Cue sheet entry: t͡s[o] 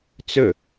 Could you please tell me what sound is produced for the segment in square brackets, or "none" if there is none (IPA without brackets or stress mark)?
ɵ